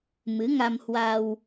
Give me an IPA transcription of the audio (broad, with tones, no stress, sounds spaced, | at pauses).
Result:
m ɨ˨˦ ŋ a˧ m h w a˧ w